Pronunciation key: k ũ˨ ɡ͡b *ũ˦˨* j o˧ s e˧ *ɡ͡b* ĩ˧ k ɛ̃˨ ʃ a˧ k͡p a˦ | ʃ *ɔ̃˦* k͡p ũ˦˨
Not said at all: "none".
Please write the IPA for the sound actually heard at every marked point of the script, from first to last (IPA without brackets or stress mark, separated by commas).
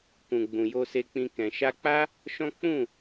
ũ˨, k͡p, ɔ̃˦